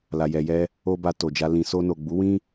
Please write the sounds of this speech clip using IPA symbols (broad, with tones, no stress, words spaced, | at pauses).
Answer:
la˨ jɛ˨jɛ˧ | o˦ba˧ to˨d͡ʒa˧ lĩ˨so˧ no˨ɡ͡bu˨˦wĩ˦